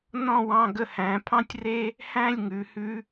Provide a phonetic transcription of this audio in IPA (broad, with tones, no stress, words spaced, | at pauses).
nɔ̃˥˧wɑ̃˧ ɡə˧hæ̃˩˧ pʰɑ̃˥tʲre˥ | hæ̃˥˧lʲŋʉ˩˧ hʉ˧